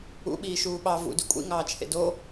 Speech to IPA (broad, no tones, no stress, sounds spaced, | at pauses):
ṵ ɓ iː ʃ uː ɓ ɑ v ṵ d y kʷʼ ḭ ŋ ɑː t͡ʃʰ ḛ d o